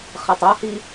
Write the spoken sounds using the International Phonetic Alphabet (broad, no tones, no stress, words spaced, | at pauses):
χɐtˤɔhi